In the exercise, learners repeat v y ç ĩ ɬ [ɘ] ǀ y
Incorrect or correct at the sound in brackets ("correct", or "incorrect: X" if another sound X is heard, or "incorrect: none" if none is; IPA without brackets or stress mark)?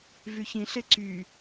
incorrect: e